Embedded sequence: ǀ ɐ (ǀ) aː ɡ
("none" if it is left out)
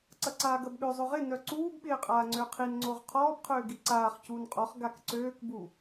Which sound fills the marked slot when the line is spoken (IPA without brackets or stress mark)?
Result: ǀ